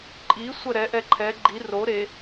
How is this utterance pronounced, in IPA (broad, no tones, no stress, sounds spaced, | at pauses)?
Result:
ǃʼ i sʷ ɜ ɾ ɛ ʔ ɛ ǃʰ ɛ ɡ͡ǃ i r o ɾ e